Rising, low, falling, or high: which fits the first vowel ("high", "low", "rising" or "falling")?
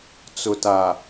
low